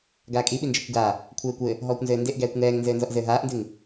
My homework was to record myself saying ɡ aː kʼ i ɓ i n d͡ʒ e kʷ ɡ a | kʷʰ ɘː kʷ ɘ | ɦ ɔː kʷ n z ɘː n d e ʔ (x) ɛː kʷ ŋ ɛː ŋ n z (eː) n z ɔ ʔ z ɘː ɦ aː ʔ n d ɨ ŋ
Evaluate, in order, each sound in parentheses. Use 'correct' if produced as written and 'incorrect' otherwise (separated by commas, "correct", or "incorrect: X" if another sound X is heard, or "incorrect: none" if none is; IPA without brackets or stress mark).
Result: incorrect: ɡ, incorrect: ɘː